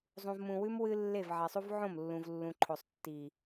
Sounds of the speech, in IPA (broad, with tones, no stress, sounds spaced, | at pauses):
zˤ ũ˨ v m ũ˨ w ʉ˦ m w ɨ˦ lː e˦˨ v ʕ e˨ sˤ u˦ v ʕ õ˦˨ m lː ũ˨ v lː ũ˨ ǃʰ o˨ sˤ tː i˨